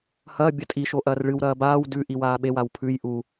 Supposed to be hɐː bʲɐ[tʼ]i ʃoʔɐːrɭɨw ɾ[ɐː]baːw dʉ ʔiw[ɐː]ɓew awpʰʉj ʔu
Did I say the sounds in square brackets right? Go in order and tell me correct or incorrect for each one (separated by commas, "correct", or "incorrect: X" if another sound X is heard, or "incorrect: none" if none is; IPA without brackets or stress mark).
correct, correct, incorrect: aː